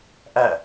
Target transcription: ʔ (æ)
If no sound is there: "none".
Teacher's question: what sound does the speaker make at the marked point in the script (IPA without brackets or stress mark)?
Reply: æ